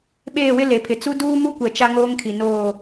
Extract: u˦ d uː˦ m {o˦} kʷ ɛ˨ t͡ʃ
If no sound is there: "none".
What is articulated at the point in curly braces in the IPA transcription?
u˦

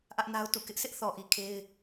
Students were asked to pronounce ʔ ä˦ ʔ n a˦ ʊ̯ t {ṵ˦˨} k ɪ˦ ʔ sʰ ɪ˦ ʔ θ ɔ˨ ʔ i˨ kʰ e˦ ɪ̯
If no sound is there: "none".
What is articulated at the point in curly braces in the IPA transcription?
ṵ˦˨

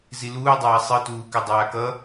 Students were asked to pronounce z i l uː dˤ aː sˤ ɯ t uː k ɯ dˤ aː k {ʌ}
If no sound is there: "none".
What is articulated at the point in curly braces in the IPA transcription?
ʌ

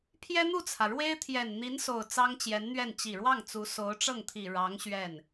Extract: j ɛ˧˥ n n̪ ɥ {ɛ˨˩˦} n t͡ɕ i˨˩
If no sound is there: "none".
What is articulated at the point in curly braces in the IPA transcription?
ɛ˥˩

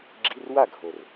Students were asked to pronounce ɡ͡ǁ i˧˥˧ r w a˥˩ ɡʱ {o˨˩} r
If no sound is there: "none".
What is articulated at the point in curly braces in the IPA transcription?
o˨˩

